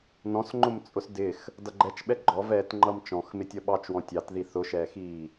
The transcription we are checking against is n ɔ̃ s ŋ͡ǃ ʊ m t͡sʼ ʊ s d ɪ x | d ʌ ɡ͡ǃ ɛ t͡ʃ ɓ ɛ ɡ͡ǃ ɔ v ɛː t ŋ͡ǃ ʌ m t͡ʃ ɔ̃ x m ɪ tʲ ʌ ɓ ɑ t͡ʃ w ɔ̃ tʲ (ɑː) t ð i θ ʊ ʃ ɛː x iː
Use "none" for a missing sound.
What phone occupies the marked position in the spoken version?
ɑ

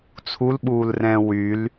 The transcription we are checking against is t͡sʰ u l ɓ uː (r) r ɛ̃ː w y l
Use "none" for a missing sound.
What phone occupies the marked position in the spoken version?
l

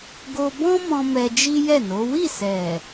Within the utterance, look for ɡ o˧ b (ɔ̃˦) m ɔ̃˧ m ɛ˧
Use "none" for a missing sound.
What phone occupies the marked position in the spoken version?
ɔ̃˦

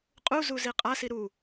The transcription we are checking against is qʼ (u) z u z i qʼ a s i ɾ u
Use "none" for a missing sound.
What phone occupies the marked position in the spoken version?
u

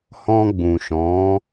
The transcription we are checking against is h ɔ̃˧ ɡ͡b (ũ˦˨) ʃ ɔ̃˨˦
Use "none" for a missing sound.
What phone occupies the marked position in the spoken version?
ũ˨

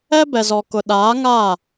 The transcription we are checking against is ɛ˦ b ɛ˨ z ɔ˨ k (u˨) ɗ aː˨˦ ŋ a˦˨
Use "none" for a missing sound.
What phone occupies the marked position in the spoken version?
ʊ˨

